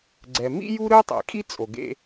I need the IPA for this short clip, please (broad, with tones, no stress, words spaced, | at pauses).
ɡ͡ǀɛ˩mḭ˥ju˥ ɾɯ˥tˤḭ˩kʼi˥ t͡sʼo˩ɡḛ˦